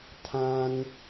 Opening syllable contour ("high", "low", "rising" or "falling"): high